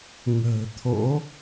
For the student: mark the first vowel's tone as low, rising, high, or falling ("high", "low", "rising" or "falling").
low